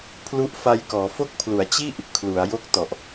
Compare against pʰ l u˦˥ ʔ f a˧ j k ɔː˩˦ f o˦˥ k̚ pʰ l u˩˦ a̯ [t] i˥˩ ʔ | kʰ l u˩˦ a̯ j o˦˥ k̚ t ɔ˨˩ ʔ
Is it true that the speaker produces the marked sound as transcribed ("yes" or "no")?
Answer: no